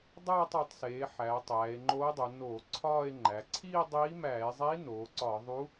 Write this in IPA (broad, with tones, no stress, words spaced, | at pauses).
dˤæː˥˧tˤo˩˧tˤseː˩˧ ħæː˩˧tˤæː˩˧e̯ŋ͡ǃoː˧˥dˤu˩˧ noː˧˩˧ ǀʰɒː˥˧e̯ŋ͡ǃæ˩˧ ǀʰiː˥˧dˤiː˧˥mæː˧˩˧e̯zˤi˧˥ noː˩˧ǀɒ˧˩˧ðˤu˧˥